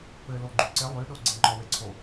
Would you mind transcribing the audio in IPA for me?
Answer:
p ɘ l o ɡ͡ǃ y ǀ ɪ lˠ y ɗ o ɡ͡ǀ e ŋ͡ǃ ɔ w e ǀʰ o

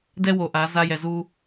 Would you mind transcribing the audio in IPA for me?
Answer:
d ɛ˦ w o˨ ʔ a˨˦ z a˦ j ɛ˨ z u˦

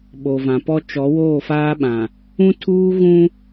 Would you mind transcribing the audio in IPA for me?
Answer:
ɓ o˨ v ã˨ p ɔ˦ t͡ʃ ɔ˨˦ w oː˦˨ f aː˦ ɓ ã˨ | ũ˦ tʰ uː˦ ɣ ũ˦

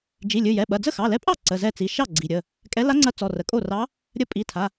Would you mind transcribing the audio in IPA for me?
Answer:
d͡ʒ i˩˧˩ lʲ ɨ˩˧˩ j ɛ˩˧˩ ɓ ɐ˩˧˩ d͡z ə˥˩ x ɑ˩˧˩ l ɛ˧˥ pʼ ɑ˥˩ ǀ ə˩˧˩ z ɛ˥˩ t͡s i˩˧˩ ʃ ɑ˥˩ ɡ͡ǀ i˩˧˩ ɾʲ ə˩˧˩ | kʼ ɛ˧˥ l a˧˥ ŋ͡ǀ ɐ˧˥ t͡s ɔ˩˧˩ r ə˩˧˩ kʼ o˥˩ r ɑ˧˥ | ɾʲ ə˧˥ pʼ i˩˧˩ tʰ a˩˧˩

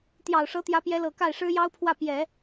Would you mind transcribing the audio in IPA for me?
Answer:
t̪ j ɑ˨˩ ʊ̯ ʂ ɤ˧˥ t̪ j ä˧˥ p j ɛ˧˥ l ɤ˨˩ k a˥˩ ɪ̯ ʂ ɻ̩˥ j ɑ˥ ʊ̯ pʰ w ä˥˩ p j ɛ˨˩˦

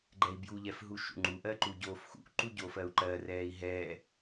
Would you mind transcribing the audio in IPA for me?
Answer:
ɡ͡ǃ ɛ i̯ b j u ʎ ɛ f ɦ u ʃ ṵ ŋ͡ǃ u ʔ ɜ ǃ u ɟ oː f x ṵ ʔ ǃ u ɟ o f ɜ u̯ ǃ ɜ r ɛː i̯ ɦ ɛ

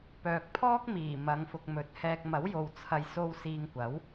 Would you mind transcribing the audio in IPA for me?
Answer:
p œː˨ k̚ pʰ ɔː˥ k̚ m iː˨˩ m ɐ˨˧ ŋ f ʊ˨ k̚ m ɵ˨ t̚ h ɛː˧ k̚ m ɐ˨˥ w j o˨ w t͡sʰ ɐ˨ j s o˧ w s iː˧ ŋ kʷ ɐ˨˥ w

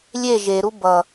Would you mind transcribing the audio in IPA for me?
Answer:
lʲ e ʒ e ɾ u b ʌ

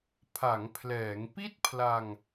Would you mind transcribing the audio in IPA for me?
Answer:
pʰ a˩˦ ŋ pʰ l ɛː˩˦ ŋ p i˥˩ t̚ pʰ l a˧ ŋ

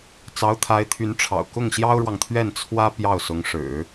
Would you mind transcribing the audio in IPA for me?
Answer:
t͡s ɑ˧˥ ʊ̯ t̪ʰ a˧˥ ɪ̯ t̪ʰ y˧˥ n ʈ͡ʂʰ ɑ̰˨˩ ʊ̯ k ʊ˥˩ ŋ ɕ j ɑ˥ ʊ̯ ɻ w ɑ˨ ŋ t̪ʰ ɥ ɛ˥˩ n t͡sʰ w ä˥ p j ɑ˥˩ ʊ̯ s ʊ˧˥ ŋ ʂ ɻ̩˨˩˦

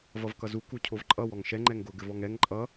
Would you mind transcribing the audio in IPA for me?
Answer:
v ʌ v k ʌ z u k u cʰ o v ǃʼ ʌ w ɔ ŋ ʃ ɛ ŋ͡ǃ ɛ ŋ ɡ ʊ ɡ ɘ v ɔ ŋ ɛ ŋ ǃʼ ʌ

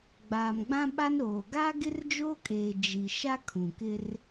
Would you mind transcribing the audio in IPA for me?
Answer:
ɡ͡b aː˨ m ɡ͡b ã˦ ɓ a˦ n ɾ oː˨ ɡ aː˦ ɡ ɪ˦ r d͡ʒ oː˦ kʼ eː˨ d͡ʒ i˨ ʃ a˦ kʰ ũ˨ k ɪ˦ r

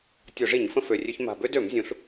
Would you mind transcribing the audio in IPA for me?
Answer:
tʲ o˧˩˧ ʐ i˧˩˧ ɲ f ə̃˧ f ø˨˩ rʲ ø˧ ç m a̤˨˩ b ø˧ d ø˧˩˧ m zʲ ũ˩˥ ɬ

